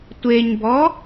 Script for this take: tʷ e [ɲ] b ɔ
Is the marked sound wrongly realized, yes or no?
no